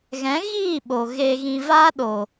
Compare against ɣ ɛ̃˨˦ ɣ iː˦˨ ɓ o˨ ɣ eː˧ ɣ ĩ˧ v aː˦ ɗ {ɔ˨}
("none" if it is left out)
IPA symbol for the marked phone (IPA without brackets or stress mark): o˨